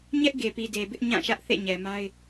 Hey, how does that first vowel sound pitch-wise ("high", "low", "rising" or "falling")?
high